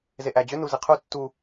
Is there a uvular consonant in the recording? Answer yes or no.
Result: yes